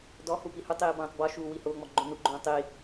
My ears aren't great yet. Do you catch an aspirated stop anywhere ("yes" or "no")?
no